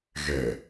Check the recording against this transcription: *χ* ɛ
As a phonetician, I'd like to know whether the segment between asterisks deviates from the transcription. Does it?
yes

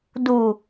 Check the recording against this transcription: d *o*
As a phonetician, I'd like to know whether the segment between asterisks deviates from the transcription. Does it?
yes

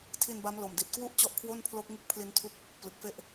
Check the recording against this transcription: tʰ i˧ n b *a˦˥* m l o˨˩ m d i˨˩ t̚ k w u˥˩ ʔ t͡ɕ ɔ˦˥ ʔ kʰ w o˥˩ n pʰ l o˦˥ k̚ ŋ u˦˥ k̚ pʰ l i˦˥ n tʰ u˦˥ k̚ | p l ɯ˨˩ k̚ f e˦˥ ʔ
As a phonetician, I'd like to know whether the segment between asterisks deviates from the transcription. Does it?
no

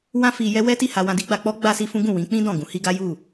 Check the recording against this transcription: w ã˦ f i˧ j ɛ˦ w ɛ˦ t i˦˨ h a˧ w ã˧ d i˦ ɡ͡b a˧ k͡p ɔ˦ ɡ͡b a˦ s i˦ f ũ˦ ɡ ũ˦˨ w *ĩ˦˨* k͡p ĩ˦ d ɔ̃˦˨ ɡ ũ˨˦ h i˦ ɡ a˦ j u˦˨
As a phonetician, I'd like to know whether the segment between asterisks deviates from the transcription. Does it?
yes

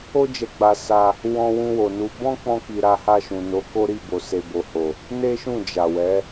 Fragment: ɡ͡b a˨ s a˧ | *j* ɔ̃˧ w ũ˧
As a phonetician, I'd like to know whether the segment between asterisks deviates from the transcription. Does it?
yes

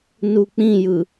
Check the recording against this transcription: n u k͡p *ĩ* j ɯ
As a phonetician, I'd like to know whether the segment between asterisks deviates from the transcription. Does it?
no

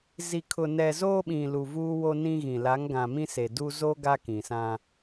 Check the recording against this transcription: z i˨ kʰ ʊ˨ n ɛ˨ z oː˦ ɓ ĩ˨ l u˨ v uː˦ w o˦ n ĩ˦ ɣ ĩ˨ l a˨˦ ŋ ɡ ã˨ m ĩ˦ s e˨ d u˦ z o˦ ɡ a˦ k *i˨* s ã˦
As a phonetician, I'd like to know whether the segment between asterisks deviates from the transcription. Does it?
yes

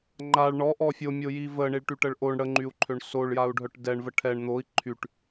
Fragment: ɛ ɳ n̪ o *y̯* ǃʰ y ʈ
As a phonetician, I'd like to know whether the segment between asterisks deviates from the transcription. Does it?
yes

